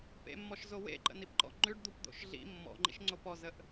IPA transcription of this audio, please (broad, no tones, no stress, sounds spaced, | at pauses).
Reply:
p ḛ mː ɔ ʃ z o w ḛ ǃ ə̰ n i p ǃ ɔ̰ ŋ͡ǃ ʉ ɖ d̪ u p d̪ o̰ ʃ ɮ ḭ mː ɔ̰ ŋ͡ǃ ḭ ʃ ŋ͡ǀ o p ɔ z ə ʔ